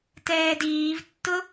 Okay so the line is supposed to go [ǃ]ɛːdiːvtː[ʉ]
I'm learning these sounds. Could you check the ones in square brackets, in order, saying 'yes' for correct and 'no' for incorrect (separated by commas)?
no, no